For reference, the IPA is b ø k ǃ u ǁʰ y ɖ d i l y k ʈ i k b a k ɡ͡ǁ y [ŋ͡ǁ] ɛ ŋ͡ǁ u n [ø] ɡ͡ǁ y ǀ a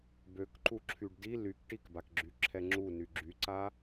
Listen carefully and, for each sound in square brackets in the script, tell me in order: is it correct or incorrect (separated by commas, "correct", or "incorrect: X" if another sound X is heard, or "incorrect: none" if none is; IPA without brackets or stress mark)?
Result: incorrect: ǁʰ, incorrect: y